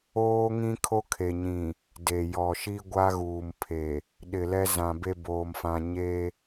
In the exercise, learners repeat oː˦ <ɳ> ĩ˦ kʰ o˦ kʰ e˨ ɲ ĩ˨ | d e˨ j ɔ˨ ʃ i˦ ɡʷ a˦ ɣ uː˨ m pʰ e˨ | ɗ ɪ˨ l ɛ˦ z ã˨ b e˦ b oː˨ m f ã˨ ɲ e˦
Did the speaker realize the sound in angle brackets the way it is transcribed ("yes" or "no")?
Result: no